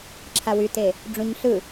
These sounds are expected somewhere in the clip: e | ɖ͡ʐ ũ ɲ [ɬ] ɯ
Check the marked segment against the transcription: correct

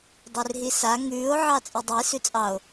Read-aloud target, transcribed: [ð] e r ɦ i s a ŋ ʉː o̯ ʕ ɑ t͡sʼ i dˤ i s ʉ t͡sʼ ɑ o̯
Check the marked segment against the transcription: incorrect: dˤ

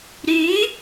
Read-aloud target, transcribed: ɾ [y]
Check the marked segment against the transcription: correct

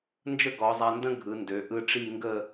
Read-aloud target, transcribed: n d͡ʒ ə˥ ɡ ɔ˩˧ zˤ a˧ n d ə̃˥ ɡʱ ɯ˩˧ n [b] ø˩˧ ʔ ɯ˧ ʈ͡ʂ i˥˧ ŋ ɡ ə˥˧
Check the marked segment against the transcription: incorrect: d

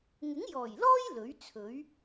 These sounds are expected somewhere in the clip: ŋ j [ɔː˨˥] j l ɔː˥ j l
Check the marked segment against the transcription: incorrect: ɔː˨˩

